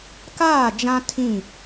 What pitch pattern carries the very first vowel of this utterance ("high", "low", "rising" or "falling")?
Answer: falling